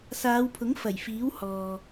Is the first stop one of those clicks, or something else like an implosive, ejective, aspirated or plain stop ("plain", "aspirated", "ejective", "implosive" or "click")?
aspirated